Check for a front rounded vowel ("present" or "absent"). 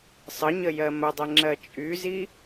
present